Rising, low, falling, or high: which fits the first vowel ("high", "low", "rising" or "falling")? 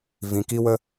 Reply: low